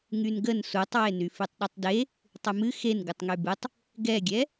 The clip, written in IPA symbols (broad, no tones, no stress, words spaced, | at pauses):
ŋynɡən sutˤwe nyfɨtˤɗytˤde | tˤɨmɨ xen ɡɨtˤŋybɨtˤ | ɡɛɡʲɛ